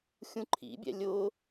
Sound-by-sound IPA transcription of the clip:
xʲ ũ ǃʰ ḭ bʲ ɛ̰ lʲ ʊ

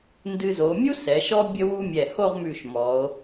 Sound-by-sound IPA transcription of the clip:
n d ɨ˧ z o˩˧ mʲ u˥ s ɛ˩˧ ʃ ɔ˥ bʲ ə˥ w u˥ mʲ ɛ˧˩ h o˥˧ ʁ m ʉ˧˩ ʃ m ɔ˩˧ o̯

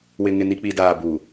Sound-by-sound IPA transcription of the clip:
w ɪ˨ ŋ ɪ˨ n i˨ k͡p i˨ d aː˨ b u˨

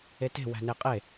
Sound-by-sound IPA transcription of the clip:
e t e̤ w æ̤ n e qʼ e

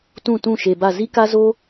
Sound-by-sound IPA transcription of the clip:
t ũ˦˨ t ũ˦˨ ʃ e˨ b a˦˨ z i˦ k a˦ z o˦

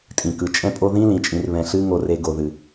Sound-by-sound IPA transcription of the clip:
tʼ ĩ˨ k ɯ˨ t͡ʃʼ ɛ̃˦ pʼ o˦ ð ĩ˦ l ĩ˨ t͡ʃʼ ĩ˨ r β ɛ̃˨ ɬ ɨ˦ ŋ o˨ r e˨ ɡ o˨ ð ɨ˨

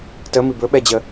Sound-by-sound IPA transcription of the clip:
t ə m i b ɵ ɓ ɛ d͡ʑ ə

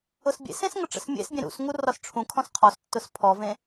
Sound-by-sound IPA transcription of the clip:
ʊ s bʲ ḛ s ẽ s ŋ ə ʈ͡ʂ ə̰ s mʲ ḛ s bʲ ẽ ɾ ṵ s ŋ u r ɒ s ʈ͡ʂʰ ũ kʰ ɔ̃ s qʰ ɔ s tː ʊ s pʰ ɔ v ẽ

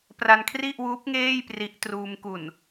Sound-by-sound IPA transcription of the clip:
p r a˧ n kʰ r i˥˩ ʔ w uː˦˥ p̚ ŋ eː˥˩ j p r i˦˥ ʔ t r uː˧ m k u˨˩ n

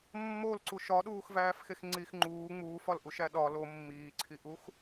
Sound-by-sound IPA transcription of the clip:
mː o l ǀ u ʃ ɒ ɗ uː x v æː f x e x ŋ͡ǀ i x ŋ͡ǃ uː ŋ͡m uː f ɒ l ʔ u ʃ æ ɗ ɒ l o mː iː ǀʰ i ʔ u x

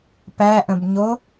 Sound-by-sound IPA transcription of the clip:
p æ ʔ ə̃ b ɲ o

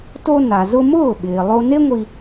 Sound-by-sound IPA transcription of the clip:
t o˧ n a˩ z ʊ˧ m ʊː˥˩ ɓ ɪː˩ lˠ o˧ n e˥ ŋʷ i˧

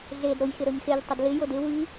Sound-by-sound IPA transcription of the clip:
ɮ e d ɾ o j x ɪ ɾ ɵ ɲ x e ʎ tˤ ɪ d l ɪ j o d ɪ w i

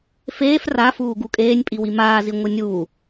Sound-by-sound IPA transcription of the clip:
f eː f r a f uː ɡ u kʼ eː nʲ pʼ i w i m aː z i ŋʷ ɯ nʲ uː

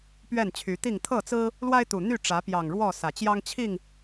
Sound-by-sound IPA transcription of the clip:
p ɥ ɛ˥˨ n t͡ɕʰ y˨˦ t̪ i˥˨ ŋ t̪ʰ ɤ˥˨ t͡s ɹ̩˦ | l w a˦ ɪ̯ t̪ u˨˩ n̪ y˥˨ ʈ͡ʂ ä˨˦ p j ɑ˨˩ ŋ ɻ w ɔ˥˨ s ä˨˩ t͡ɕ j ɑ˦ ŋ t͡ɕʰ i˥˨ ŋ

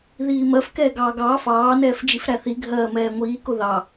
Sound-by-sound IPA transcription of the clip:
ð iː m ɜ f k ɛː ɡ ɑː ɡ ɑː f ɑː n ɛː f d͡ʒ i f ɾ æ θ i ɡʱ ɜː m ɛː ŋʷ iː k ʊ ð ɑ

